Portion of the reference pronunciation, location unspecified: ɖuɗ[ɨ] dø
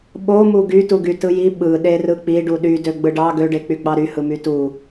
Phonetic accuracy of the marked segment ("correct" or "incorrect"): incorrect